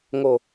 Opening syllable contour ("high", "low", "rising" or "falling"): low